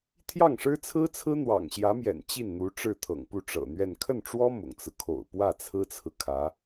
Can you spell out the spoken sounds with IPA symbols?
t̪ʰ j ɑ˥˩ ŋ ʂ ɻ̩˥ t͡sʰ ɹ̩˥ t͡sʰ ɹ̩˥ n̪ w ɑ̰˨˩ ŋ ɕ j ä˧˥ m j ɛ̰˨˩ n t͡ɕ i˥˩ n n̪ u˧˥ ʈ͡ʂ ɻ̩˥˩ t̪ʰ ɤ̰˨˩ ŋ p u˥˩ ʈ͡ʂ ɤ̰˨˩ n̪ ɥ ɛ˥˧ n kʰ ə˥˩ n ʈ͡ʂ w ɔ˥ m ʊ̰˨˩ ŋ t͡s ɹ̩˦ kʰ o̰˨˩ ʊ̯ p w ä˥˩ t͡sʰ ɹ̩˥ t͡sʰ ɹ̩˨ kʰ ä˧˥

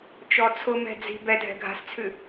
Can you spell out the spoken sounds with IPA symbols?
t͡ʃ ɔ t͡sʰ ʊ m ɛ̤ d͡z i̤ b ɛ dʱ ɛ̤ ɡʱ a̤ s t͡sʰ ʉ

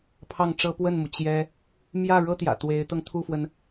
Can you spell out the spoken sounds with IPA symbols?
pʰ ɑ˥˩ ŋ ʈ͡ʂ ɤ˥ p w ə˥˩ n m u˩ t͡ɕ j ɛ˥ | m j ä˥˩ ɻ ɤ˥ t̪ j ä̰˨˩ t̪ w e˧˥ ɪ̯ t̪ ɤ˧ ŋ t̪ʰ u˥˩ f w ə˩ n

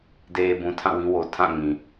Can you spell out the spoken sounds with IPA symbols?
d e˨ b ũ˨ tʰ ã˦˨ w ĩ˦ w o˨ tʰ ã˦˨ ŋ ĩ˨

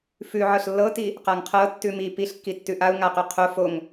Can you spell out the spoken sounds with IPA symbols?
f ʉ ʕ ɤ ɬ lː ɤ t i | q a ŋ qʰ ɤ tː ʉ m i p i ɬ kː i tː ʉ ʔ a u̯ ŋ a q ʉ qʰ o f o ŋ

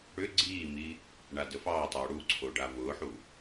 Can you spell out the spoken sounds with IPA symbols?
ɽ ʏ ɡ͡ǀ iː m i | ɳ a d ə f ɑ tˤ oː ɽ u ǀʰ o ɖ a v ʊː ħ u

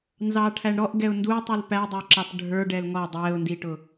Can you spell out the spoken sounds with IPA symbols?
n z ɑ ʈʰ æ ɳ ɾ ɔ ʔ ɡ ɛ ʊ̯ n d u tˤ u l p æ dˤ ə˞ ǁ ɑ p ɖʱ ə˞ ɖ ɛ l ŋ ɔ dˤ ɛ ʊ̯ n d i ʈ ʊ

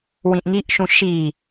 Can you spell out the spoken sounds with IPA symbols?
w ĩ ʔ ŋ i ʔ ʃ ũ ʃ i

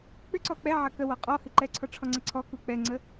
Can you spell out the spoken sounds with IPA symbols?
k͡p ʏ ǀ ɔ k͡p ɛ ʕ ɐ k ə w ɔ qʼ ɔ h ɨ ǃ ɛ ǀʰ ɔ ʈ͡ʂʰ ɔ ŋ͡ǀ ɛ ǀʰ ɔ k u k͡p ɛ ŋ͡ǀ ə

